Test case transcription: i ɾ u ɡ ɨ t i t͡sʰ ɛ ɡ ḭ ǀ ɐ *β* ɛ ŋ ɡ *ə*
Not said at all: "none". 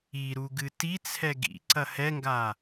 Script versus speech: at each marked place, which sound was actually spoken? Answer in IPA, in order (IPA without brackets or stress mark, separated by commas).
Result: h, a